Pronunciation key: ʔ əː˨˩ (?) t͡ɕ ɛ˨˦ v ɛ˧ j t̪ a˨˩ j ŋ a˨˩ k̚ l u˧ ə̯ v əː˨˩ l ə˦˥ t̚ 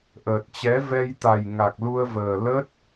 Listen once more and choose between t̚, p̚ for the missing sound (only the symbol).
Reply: t̚